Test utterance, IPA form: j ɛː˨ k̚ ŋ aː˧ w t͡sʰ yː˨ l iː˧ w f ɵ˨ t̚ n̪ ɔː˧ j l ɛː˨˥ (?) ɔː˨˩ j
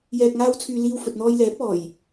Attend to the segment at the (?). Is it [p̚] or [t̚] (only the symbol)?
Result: p̚